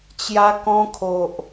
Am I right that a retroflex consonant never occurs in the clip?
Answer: yes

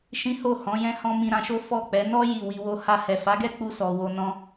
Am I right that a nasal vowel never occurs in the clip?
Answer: no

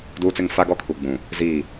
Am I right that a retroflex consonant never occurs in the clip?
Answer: yes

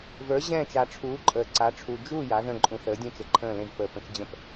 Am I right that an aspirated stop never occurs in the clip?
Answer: no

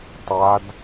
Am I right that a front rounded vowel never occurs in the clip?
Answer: yes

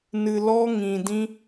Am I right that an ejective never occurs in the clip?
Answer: yes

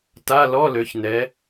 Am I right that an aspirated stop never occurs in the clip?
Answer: yes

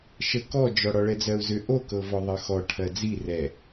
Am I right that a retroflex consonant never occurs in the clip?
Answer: no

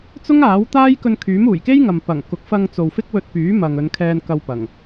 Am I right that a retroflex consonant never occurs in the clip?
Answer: yes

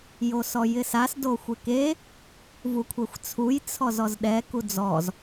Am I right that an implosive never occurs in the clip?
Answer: no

